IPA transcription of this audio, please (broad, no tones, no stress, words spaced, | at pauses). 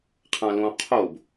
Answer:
qʰãlõ qʰob